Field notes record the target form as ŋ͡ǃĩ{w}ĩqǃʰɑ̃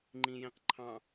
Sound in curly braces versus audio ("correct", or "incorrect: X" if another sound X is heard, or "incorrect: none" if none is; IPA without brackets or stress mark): incorrect: j